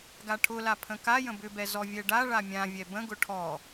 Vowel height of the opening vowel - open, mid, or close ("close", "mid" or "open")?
open